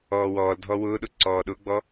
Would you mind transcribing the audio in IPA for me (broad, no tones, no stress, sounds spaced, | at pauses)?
ɔː w ɔː l dʱ ɔ w ʊː ɗ ʊ ǀ ɔː ɗ ʊ ɡ͡b ɔ